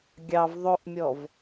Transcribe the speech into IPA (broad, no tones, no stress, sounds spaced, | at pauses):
ɡʲ ɑ v ðˤ o ʔ mʲ ɔ v